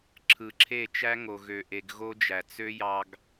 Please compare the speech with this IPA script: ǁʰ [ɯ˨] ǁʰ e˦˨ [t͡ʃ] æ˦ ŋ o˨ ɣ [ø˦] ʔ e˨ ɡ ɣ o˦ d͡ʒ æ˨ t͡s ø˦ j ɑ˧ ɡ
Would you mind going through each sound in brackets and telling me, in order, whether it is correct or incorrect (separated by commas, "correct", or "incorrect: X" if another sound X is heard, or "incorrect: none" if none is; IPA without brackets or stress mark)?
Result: correct, correct, incorrect: ø˨